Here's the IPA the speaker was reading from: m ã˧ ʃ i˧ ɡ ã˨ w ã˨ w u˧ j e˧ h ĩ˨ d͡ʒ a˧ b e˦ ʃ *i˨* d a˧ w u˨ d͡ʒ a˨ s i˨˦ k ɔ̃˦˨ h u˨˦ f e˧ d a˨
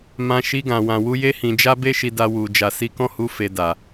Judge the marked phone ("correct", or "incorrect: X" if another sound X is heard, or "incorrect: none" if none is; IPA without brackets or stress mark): incorrect: i˧